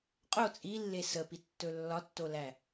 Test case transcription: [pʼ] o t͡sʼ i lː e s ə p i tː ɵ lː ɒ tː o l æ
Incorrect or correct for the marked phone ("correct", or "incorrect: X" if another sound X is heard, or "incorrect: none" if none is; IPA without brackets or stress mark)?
incorrect: qʼ